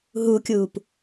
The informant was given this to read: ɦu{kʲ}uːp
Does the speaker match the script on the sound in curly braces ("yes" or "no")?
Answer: yes